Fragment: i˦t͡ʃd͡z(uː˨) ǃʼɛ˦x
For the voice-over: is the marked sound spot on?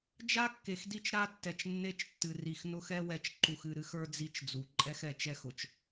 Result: no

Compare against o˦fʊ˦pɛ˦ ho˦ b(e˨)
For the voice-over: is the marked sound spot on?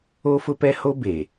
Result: yes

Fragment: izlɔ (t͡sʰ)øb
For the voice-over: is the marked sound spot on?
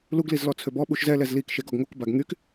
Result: yes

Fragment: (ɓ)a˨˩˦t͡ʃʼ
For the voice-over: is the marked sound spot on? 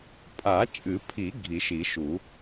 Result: no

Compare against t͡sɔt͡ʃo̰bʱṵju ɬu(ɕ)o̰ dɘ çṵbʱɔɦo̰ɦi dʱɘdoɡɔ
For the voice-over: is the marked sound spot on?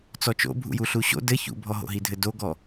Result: yes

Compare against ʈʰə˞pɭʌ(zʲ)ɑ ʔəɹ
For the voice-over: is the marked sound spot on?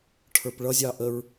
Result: yes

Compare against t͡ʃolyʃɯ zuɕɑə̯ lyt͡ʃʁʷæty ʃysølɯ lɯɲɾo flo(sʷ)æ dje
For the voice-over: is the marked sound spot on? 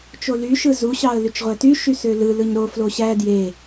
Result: no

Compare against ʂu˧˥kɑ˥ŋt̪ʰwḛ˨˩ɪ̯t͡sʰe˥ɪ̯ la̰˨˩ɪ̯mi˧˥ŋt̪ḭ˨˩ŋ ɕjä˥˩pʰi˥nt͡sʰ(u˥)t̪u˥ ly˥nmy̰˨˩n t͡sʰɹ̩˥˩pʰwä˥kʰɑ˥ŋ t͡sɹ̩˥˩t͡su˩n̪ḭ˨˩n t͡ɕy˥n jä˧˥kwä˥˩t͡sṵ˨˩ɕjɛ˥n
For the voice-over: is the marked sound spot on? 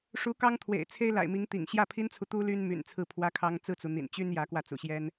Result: no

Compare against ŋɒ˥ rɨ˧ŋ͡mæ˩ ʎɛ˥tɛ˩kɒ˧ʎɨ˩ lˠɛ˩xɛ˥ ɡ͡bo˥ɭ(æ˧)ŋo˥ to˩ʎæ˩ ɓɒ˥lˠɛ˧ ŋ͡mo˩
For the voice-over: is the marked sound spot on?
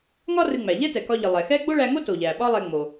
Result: yes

